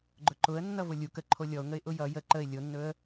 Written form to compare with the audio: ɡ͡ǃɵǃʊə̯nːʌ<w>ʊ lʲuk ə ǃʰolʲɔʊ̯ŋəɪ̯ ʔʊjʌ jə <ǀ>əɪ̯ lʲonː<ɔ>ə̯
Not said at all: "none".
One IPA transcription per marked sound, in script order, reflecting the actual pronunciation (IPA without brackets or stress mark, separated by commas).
v, ǃ, ɵ